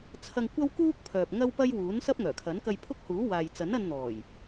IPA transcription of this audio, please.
t͡sʰɐ˧ŋkʷɐ˥wkuː˥k̚ pʰœː˨p̚ŋɐ˥wpɐ˥j wuː˨˥nsɐ˥p̚ ŋœː˨˩kʰɐ˨˥nkɐ˧j pʰʊ˥k̚huː˨˥ waː˨jt͡sɐ˨˥nɐ˧nn̪ɔː˨˩j

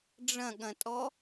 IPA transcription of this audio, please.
ɖ͡ʐɐ̃ɠɐ̃tʼɔ

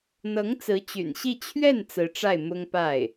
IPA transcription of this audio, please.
n̪ɤ˧˥ŋ t͡sɹ̩˧˥t͡ɕy̰˨˩nɕi˥˧ t͡ɕʰɥɛ˥˩n t͡sɹ̩˧˥ʈ͡ʂa˥˩ɪ̯mʊ˥ŋ pa˥˩ɪ̯

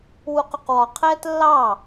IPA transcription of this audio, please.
wuqʊqwɒ qʰɛːtlːɑ

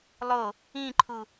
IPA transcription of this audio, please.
lˠo | ĩǃʰu

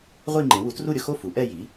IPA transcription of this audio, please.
ʁʷi˥˧ŋ͡ǃẽ˩˥wu˩˥ tru˥˧ɾʲʊ˥˧xo˥˧ fu˩˥ʔɛ˥˧ji˩˥

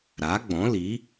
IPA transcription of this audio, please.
ɾa˨˦ɡ͡bɔ̃˨˦li˨˦

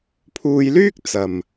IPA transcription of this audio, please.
pʰuː˧jlyː˥k̚ t͡sɐ˨m

